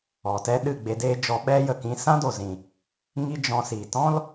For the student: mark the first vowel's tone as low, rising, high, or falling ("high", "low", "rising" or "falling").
low